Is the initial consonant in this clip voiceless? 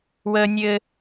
no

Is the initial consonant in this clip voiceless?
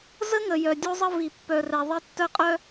no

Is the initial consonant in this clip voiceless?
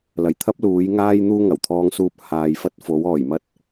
no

